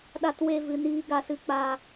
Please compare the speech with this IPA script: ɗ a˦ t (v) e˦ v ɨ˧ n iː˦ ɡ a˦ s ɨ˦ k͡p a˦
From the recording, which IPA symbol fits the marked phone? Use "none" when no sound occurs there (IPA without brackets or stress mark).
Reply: w